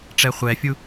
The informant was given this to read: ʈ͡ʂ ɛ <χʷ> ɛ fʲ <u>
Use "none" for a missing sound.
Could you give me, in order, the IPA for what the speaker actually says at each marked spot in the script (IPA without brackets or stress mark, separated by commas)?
χʷ, u